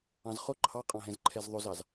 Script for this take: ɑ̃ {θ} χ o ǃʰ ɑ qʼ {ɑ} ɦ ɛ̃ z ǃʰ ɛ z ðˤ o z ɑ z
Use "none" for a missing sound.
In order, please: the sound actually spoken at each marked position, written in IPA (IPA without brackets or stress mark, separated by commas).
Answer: z, ɑ̃